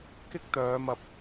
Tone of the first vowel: high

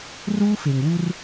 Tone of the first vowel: high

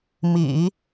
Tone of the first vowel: low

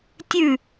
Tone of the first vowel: falling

